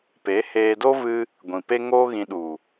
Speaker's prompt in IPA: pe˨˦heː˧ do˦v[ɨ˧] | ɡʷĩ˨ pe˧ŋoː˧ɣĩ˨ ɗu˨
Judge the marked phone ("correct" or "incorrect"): correct